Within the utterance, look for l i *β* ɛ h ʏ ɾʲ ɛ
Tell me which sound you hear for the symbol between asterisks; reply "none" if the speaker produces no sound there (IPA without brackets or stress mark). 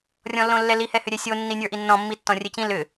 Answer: h